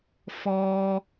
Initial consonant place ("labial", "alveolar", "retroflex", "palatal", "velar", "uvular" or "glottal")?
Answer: labial